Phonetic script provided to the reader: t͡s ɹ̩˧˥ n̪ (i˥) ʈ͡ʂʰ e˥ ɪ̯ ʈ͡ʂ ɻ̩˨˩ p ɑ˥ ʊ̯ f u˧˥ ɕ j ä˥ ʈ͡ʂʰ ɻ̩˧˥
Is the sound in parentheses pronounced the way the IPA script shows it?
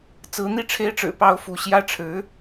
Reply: no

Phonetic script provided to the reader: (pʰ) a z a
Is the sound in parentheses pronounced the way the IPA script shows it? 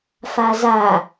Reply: no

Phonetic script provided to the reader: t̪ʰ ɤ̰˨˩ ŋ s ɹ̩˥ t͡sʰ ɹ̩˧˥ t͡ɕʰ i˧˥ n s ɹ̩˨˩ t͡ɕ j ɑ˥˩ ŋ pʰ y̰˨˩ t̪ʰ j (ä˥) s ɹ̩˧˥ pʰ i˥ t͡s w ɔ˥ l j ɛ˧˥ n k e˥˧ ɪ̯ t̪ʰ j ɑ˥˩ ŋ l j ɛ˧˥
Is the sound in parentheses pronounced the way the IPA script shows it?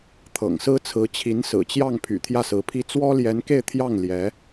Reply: no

